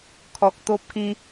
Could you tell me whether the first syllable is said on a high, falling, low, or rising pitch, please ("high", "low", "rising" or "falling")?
low